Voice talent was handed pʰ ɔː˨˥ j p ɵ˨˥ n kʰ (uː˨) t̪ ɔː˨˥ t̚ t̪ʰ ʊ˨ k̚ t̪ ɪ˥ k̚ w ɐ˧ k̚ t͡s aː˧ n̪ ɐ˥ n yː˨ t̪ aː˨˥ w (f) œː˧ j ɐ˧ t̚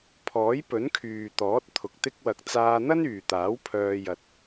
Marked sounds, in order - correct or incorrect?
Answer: incorrect: yː˨, incorrect: pʰ

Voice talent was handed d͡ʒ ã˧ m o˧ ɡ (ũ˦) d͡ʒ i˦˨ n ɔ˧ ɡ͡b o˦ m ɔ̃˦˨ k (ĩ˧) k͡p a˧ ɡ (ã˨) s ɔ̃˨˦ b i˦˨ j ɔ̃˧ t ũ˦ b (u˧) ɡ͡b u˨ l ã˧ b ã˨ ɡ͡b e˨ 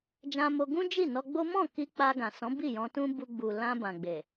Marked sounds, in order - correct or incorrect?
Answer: correct, incorrect: i˧, correct, correct

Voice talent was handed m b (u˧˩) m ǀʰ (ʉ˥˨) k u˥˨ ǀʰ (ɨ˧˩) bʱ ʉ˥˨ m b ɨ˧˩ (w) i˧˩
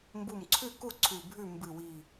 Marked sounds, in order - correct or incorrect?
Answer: correct, correct, incorrect: ʉ˧˩, correct

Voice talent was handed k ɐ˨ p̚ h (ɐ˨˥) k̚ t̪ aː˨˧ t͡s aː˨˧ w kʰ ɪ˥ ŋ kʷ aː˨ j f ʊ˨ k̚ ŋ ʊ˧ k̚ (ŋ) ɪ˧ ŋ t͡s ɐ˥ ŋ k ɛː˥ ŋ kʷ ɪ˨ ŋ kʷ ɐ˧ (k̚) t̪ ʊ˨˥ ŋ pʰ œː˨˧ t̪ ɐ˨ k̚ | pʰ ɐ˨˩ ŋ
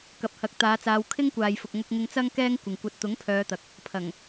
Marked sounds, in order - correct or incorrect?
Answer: correct, correct, incorrect: t̚

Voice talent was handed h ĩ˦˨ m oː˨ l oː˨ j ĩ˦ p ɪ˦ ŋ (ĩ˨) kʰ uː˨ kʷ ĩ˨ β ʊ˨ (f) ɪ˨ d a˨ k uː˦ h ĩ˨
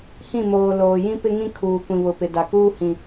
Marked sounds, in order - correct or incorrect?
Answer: incorrect: ĩ˦, incorrect: p

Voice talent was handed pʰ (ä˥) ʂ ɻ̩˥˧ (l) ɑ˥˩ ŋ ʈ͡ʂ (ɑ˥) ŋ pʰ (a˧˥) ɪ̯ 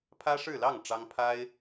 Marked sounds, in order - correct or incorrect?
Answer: correct, correct, correct, incorrect: a˥

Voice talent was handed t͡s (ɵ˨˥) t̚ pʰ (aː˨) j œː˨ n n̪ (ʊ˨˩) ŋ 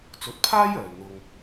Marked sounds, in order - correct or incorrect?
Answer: correct, incorrect: aː˥, incorrect: ʊ˧

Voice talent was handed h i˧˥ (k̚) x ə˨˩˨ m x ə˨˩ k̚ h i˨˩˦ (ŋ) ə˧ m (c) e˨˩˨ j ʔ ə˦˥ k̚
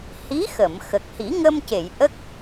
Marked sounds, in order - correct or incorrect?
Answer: incorrect: none, correct, correct

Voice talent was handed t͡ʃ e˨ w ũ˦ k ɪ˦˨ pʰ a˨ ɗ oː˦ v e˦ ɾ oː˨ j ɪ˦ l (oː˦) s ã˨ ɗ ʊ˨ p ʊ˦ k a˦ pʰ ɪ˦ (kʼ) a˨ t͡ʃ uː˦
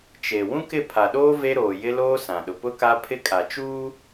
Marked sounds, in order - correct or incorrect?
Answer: correct, correct

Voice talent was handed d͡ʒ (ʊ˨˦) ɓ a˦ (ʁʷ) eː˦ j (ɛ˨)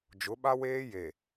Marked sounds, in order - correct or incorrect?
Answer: correct, incorrect: w, incorrect: e˨

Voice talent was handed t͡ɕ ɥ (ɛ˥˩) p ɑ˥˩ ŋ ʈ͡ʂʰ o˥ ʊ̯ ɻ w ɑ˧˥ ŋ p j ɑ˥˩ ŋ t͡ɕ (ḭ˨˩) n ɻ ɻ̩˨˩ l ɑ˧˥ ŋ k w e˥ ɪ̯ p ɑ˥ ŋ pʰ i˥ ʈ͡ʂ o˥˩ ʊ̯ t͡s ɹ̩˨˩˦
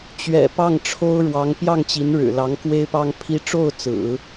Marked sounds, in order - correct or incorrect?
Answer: incorrect: ɛ̰˨˩, incorrect: i˧˥

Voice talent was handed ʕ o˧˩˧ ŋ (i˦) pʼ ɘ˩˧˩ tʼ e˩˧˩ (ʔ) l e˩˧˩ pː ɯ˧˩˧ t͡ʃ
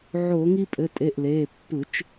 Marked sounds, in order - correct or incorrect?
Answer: correct, correct

